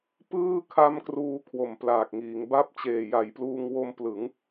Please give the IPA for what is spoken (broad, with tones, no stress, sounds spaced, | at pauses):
p ɯː˥˩ kʰ a˦˥ m k r uː˧ kʰ w o˨˩ m p l aː˨˩ k̚ ŋ iː˩˦ ŋ b a˦˥ p̚ t͡ɕ eː˨˩ j a˩˦ j p l uː˧ ŋ w o˧ m p l ɯ˩˦ ŋ